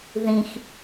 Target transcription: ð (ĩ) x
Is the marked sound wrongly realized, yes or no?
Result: no